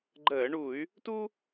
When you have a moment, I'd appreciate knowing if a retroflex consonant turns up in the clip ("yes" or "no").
yes